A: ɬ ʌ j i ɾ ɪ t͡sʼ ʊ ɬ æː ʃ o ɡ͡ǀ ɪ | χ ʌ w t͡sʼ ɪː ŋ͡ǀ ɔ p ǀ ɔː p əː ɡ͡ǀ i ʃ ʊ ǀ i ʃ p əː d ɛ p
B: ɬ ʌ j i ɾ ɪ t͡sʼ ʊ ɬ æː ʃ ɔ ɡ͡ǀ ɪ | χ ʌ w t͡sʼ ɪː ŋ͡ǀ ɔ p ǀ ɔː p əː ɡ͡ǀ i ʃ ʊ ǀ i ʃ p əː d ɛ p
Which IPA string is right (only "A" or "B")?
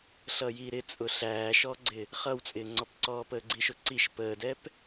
B